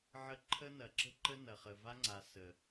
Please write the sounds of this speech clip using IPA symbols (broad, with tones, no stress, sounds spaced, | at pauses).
ʕ ə˦ ǃʰ ə˦ n ɐ˨ ǁ ə̤˦ ǃ ə˦ n ɐ˨ χ ə˨ v a˦ ŋ͡ǀ a˨ s ə˨